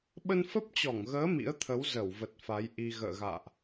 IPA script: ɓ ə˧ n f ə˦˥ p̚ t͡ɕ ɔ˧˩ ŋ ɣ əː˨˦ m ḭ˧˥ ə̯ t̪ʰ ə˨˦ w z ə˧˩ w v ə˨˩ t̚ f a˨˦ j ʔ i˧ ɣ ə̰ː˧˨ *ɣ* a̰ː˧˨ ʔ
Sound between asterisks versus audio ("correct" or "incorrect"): correct